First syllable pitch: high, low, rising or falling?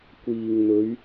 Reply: low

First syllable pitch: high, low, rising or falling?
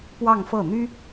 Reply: falling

